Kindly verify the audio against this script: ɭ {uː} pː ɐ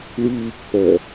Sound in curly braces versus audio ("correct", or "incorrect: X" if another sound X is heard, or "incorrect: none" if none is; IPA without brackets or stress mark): correct